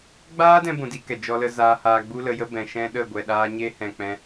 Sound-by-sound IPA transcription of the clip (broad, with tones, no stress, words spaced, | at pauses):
ɡ͡baː˦dɛ̃˧ bũ˧di˦kɛ˨ d͡ʒɔ˧lə˧ zaː˧ haː˧ɡ͡bu˦lə˧jə˦ bɛ̃˨ ʃɛ̃˦ɗə˦˨ ɡʷɛ˨ɗaː˧ ɲe˦hɛ̃˨k͡pɛ̃˧